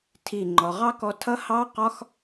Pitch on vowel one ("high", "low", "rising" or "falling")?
falling